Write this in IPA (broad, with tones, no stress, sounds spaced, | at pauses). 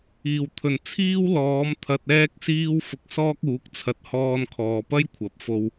iː˨˩ w t̪ʰ ɵ˨˩ n t͡sʰ iː˥ w l ɔː˨˥ m t̪ʰ ɐ˧ t̚ ɛː˥ k̚ s iː˥ w f ʊ˧ k̚ s ɔː˥ k̚ uː˨˥ k̚ t͡sʰ ɐ˨˥ t̚ h ɔː˧ n kʰ ɔː˨ p ɐ˥ j kʷʰ ɐ˨˥ p̚ f o˧ w